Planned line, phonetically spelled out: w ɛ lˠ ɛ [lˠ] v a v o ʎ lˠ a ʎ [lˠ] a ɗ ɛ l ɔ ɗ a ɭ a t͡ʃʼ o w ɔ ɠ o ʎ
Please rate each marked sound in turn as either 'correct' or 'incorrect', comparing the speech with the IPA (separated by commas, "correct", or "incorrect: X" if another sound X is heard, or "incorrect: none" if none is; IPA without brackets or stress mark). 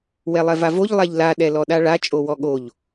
incorrect: none, incorrect: l